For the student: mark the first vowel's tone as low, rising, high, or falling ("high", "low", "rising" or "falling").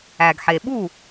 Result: low